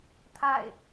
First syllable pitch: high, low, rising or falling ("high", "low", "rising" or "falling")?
falling